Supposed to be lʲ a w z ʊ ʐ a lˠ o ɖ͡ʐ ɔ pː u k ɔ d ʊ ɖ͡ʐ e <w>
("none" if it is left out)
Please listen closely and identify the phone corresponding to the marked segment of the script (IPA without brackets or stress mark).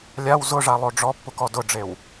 w